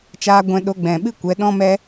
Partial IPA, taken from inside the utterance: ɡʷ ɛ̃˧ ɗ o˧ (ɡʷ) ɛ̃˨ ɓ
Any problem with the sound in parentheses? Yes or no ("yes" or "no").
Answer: yes